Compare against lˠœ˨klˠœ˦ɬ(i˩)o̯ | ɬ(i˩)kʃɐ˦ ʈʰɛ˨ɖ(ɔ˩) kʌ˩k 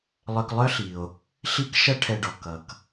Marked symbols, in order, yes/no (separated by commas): yes, no, yes